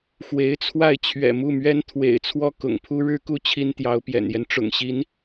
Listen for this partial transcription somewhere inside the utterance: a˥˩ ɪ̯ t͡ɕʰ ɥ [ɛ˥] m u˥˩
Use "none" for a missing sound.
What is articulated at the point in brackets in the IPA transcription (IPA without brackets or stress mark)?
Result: ɛ̰˨˩